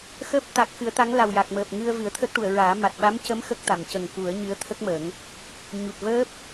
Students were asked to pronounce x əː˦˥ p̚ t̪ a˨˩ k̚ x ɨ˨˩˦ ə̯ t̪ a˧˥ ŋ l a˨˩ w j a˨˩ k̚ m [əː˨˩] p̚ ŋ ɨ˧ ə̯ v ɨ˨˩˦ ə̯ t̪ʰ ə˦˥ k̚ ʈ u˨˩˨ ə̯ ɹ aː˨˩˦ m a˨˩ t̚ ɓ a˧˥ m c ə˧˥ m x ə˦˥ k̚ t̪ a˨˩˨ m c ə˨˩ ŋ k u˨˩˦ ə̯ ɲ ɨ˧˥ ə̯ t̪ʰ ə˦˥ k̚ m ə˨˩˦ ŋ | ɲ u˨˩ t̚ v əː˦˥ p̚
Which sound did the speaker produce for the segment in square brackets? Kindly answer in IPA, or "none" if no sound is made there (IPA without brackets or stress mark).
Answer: əː˨˩